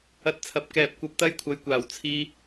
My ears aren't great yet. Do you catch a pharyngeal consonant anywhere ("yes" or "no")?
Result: no